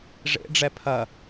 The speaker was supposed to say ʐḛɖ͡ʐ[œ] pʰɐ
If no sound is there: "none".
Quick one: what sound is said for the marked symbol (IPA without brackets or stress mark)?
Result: ɛ